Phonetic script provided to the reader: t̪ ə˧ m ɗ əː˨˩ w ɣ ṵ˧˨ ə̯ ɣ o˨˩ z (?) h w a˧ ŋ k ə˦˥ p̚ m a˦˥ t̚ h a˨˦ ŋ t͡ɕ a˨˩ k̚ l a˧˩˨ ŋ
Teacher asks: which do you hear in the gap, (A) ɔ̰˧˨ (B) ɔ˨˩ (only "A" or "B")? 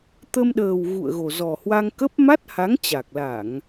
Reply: B